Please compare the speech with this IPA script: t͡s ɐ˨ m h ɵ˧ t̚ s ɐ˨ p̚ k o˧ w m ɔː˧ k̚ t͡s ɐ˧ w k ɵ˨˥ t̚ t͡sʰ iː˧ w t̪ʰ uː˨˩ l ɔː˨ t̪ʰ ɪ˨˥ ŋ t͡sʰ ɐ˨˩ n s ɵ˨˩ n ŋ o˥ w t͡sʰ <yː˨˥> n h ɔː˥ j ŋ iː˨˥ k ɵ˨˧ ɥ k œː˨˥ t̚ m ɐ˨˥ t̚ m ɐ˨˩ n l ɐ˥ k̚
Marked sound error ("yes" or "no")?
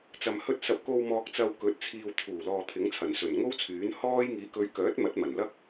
no